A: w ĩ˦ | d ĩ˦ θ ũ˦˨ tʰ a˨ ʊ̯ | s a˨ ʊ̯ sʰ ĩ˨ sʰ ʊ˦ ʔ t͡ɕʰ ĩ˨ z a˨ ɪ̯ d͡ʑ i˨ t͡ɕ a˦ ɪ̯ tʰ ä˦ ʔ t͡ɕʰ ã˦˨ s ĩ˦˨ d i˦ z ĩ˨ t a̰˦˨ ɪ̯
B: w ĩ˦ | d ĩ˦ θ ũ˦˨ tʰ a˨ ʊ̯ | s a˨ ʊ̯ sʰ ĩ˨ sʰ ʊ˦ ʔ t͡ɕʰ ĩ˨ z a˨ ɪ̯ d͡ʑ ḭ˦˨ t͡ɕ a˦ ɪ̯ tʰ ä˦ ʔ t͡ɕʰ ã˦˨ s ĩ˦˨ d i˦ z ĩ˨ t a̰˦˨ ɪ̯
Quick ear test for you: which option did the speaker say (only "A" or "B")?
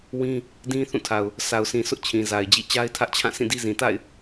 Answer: B